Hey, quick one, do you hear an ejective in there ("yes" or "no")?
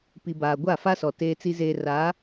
no